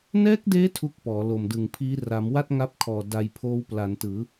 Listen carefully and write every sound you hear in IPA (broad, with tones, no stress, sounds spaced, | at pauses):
n ɛː˦˥ k̚ d eː˦˥ tʰ u˥˩ k̚ p ɔː˩˦ l o˨˩ m d ɯ˨˩ ŋ pʰ iː˦˥ r a˩˦ m w a˥˩ t̚ ŋ a˦˥ p̚ kʰ ɔː˨˩ d a˧ j pʰ oː˦˥ w p l a˩˦ n t ɯː˩˦